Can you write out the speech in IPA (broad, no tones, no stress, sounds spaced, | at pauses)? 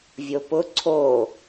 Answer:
vʲ o p ʊ ǀʰ o